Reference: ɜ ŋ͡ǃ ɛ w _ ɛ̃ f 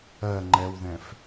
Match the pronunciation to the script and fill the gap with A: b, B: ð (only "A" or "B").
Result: B